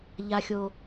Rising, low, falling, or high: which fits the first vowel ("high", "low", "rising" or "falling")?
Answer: low